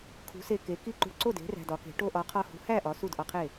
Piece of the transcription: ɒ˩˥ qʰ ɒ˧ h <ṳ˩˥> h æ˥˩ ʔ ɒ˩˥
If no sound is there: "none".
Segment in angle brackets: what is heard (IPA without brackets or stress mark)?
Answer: ṳ˩˥